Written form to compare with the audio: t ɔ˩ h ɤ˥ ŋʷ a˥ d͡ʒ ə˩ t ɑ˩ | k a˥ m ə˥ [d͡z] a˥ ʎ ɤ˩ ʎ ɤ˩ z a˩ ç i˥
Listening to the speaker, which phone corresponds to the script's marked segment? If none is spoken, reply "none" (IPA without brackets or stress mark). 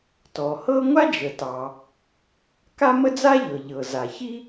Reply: d͡z